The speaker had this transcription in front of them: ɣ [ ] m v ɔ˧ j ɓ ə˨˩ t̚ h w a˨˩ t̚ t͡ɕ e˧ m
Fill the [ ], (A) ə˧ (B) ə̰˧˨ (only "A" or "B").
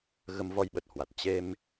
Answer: A